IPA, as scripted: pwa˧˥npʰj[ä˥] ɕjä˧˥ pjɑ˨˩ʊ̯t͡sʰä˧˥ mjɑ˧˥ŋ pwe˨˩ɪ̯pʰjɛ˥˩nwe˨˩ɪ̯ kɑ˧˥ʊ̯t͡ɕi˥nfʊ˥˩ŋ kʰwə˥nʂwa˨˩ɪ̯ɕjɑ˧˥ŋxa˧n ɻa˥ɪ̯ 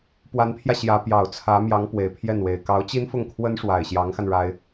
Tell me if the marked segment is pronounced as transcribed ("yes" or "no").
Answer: no